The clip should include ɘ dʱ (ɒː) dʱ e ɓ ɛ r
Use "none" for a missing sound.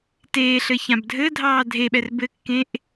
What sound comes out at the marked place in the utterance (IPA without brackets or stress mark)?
ɑː